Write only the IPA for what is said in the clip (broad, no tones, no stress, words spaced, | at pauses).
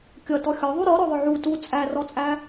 kʲʌtɔ xʲɒðˤu ɾɔɾɔðˤʊ ʕu tu t͡sʼærɔt͡sʼæ